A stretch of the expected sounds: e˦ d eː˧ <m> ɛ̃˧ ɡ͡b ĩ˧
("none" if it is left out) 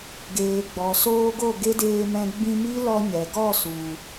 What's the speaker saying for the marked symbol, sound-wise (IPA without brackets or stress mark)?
m